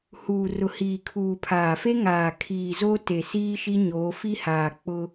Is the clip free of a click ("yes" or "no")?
yes